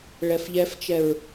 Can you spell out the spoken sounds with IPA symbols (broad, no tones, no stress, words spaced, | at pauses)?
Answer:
ɭɛfʎɛft͡ʃɛɹ